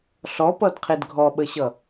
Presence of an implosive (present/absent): present